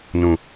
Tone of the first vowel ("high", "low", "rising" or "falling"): low